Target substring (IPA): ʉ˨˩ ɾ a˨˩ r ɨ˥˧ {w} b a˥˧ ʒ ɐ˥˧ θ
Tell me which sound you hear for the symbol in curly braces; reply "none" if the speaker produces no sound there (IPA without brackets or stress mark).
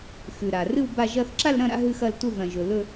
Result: w